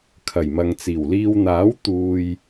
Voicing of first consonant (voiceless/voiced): voiceless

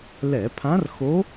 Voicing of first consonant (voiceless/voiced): voiced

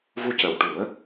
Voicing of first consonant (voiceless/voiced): voiced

